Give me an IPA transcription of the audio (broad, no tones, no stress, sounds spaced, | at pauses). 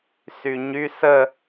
s y ɲ y s ə